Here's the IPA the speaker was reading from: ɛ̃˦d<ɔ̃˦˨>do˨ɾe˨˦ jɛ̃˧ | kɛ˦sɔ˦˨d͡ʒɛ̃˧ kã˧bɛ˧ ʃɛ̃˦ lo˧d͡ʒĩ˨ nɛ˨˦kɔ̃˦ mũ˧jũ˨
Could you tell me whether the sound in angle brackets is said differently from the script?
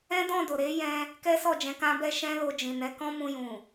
no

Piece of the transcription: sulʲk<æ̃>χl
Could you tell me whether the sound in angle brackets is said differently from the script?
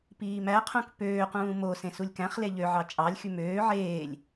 no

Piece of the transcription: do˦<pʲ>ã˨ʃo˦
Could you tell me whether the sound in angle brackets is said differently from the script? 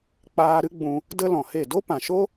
yes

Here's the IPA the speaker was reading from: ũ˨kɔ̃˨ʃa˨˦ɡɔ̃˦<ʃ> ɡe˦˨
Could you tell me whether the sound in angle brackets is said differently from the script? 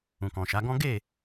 yes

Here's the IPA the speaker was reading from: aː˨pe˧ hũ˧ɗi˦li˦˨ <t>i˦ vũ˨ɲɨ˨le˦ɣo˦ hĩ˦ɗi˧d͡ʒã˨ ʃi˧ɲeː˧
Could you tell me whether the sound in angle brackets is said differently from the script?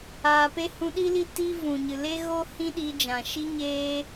no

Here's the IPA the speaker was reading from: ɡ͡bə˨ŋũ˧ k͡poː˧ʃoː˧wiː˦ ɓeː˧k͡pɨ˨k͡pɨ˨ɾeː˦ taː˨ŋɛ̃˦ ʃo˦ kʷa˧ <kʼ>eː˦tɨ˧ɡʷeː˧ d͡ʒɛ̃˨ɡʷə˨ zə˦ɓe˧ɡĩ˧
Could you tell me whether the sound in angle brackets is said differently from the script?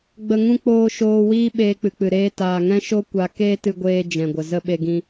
yes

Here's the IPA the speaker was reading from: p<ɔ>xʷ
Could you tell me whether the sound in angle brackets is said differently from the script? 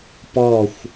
no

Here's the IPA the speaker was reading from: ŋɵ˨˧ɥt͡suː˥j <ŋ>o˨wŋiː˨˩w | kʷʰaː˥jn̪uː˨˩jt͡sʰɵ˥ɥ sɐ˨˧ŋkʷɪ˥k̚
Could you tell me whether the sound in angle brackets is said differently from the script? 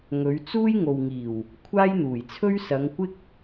no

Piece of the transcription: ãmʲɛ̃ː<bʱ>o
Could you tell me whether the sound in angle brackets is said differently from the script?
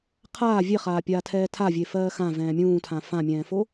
yes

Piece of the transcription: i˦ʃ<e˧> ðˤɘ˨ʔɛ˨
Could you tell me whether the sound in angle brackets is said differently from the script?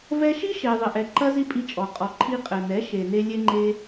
yes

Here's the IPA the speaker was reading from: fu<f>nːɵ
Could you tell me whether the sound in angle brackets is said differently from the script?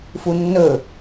yes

